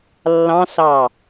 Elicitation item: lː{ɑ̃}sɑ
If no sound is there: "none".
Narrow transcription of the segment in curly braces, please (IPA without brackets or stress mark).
ɑ̃